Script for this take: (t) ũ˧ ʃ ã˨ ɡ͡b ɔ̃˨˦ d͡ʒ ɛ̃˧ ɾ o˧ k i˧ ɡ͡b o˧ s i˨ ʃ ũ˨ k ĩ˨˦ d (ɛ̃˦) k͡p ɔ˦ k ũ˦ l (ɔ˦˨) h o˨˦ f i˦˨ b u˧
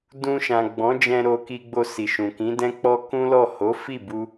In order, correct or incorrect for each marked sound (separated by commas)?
incorrect, correct, correct